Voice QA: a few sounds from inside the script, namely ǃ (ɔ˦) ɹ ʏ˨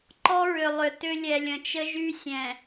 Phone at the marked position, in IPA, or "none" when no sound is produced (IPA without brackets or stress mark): ɔ˦